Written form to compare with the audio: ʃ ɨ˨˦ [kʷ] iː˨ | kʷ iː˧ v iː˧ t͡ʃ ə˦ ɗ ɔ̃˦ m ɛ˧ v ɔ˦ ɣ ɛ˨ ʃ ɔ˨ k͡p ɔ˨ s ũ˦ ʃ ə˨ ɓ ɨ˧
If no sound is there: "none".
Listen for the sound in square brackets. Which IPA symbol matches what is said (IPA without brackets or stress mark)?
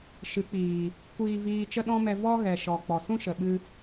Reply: k͡p